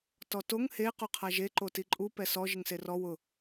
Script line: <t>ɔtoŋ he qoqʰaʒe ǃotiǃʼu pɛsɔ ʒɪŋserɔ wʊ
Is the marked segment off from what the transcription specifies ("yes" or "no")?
no